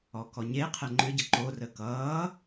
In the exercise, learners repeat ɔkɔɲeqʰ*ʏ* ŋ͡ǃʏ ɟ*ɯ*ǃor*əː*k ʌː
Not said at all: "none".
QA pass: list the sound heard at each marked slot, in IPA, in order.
ɛ, ə, əː

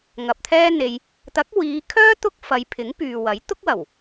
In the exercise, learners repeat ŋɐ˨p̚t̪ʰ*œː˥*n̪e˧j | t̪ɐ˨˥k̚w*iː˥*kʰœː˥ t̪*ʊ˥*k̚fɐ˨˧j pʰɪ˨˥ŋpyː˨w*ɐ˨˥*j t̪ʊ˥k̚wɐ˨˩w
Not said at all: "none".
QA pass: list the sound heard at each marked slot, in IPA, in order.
ɛː˥, iː˨˧, ʊ˥, ɐ˨˥

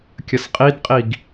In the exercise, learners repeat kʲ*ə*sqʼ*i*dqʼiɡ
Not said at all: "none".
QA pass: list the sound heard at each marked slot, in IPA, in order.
ə, i

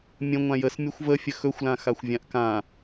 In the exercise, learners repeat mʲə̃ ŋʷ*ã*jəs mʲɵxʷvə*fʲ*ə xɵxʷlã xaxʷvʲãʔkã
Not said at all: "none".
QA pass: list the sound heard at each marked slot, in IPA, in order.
ã, fʲ

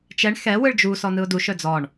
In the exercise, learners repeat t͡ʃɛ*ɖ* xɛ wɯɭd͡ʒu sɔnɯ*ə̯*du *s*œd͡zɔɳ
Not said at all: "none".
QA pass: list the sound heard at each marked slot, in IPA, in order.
ɳ, ʊ̯, ʃ

